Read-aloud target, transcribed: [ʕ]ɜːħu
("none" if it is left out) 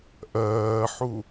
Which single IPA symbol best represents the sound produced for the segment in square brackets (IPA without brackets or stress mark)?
ʔ